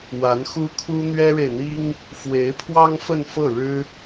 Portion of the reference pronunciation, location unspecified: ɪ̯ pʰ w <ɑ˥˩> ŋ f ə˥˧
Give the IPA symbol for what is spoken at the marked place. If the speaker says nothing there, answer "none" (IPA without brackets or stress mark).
ɑ˥